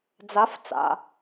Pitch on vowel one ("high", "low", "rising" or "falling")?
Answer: rising